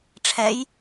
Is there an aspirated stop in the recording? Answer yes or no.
yes